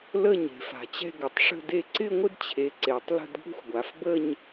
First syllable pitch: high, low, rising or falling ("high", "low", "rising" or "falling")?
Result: falling